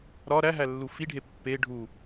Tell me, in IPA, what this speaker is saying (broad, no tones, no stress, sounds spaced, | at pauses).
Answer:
ɾ ɒ ɾ æ ɦ æ lː u f i ɖʱ e pː e ɖʱ u